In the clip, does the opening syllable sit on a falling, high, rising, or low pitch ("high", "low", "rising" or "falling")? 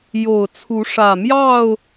low